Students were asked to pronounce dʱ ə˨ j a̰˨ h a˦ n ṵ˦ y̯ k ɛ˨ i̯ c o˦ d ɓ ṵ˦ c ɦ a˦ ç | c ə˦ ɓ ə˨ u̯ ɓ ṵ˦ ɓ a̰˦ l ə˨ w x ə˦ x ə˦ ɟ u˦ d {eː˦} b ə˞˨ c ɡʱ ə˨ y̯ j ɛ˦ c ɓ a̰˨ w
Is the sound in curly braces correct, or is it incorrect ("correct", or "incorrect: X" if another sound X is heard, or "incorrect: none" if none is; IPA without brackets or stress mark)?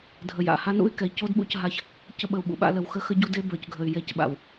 incorrect: e˦